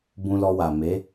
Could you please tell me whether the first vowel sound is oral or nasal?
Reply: nasal